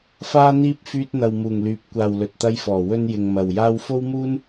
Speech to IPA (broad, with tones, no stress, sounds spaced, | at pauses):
f aː˥ n̪ iː˥ p̚ f yː˧ t̚ n̪ ɐ˨ w m uː˨˩ ŋ l yː˨˥ p̚ kʷ aː˨ w l ɵ˨ t̚ t̪ ɐ˧ j f ɔː˨˩ w ɵ˥ n j ɪ˧ ŋ m ɐ˨ w j aː˥ w f o˥ w m uː˥ n